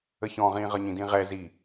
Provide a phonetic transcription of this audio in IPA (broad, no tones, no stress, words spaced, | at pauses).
əçɔ̃ʁĩː ʁʌɲĩdĩʁɛ zi